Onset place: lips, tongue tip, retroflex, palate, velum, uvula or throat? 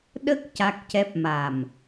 tongue tip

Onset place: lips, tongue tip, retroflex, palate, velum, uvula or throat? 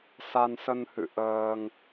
tongue tip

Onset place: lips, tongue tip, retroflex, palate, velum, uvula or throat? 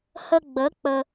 throat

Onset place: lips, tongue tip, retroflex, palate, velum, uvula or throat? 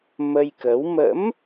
lips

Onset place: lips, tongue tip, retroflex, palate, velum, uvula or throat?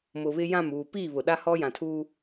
lips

